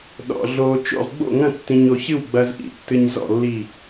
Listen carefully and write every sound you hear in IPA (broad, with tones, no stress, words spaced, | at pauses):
ɗɔ̰˧ ɮo˧ t͡ʃo̰˥˨ʁɡ͡bo̰˥˨ŋɐ̃˥˨ tːĩ˧ɲo˧çɨ˥˨w ɡ͡bɐ˧zʔḭ˧˩ tːɨ˧ɲzɔ̰˥˨lːi˧˩